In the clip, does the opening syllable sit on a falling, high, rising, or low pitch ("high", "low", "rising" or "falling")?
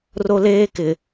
high